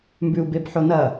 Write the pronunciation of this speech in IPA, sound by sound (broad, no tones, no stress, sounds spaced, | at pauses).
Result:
m b ʉ u̯ b e b ħ o n ɐ